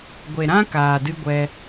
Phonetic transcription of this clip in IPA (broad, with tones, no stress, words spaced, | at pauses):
ɡʷe˨ɾã˦ kaː˨dɨ˧ɡʷɛ˧